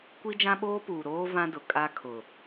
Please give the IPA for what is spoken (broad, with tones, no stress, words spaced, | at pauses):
kʷi˦d͡ʒã˦ɓoː˦puː˨ ɾoː˦ vã˦dʊ˨ kʼa˦kʰʊ˨